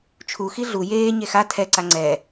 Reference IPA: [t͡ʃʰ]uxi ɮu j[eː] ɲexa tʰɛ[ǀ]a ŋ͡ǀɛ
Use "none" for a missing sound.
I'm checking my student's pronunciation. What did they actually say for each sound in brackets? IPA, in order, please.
t͡ʃʰ, eː, ǀ

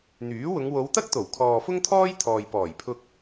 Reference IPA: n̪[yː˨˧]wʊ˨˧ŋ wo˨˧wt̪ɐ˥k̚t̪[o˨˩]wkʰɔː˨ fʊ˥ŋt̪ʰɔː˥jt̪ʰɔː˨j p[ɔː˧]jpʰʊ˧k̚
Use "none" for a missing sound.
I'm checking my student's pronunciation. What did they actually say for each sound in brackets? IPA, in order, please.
yː˨˥, o˨˩, ɔː˨˩

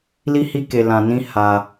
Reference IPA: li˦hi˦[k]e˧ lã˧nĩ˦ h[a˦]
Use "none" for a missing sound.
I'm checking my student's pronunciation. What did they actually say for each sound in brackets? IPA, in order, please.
k, a˧

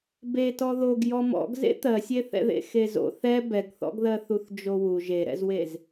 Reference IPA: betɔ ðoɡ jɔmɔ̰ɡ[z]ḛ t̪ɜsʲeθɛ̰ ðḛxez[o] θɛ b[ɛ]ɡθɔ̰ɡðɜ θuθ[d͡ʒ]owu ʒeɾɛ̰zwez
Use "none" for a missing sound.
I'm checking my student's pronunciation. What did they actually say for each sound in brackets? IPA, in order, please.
z, o̰, ɛ, d͡ʒ

